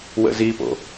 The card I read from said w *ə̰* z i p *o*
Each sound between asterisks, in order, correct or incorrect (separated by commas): correct, incorrect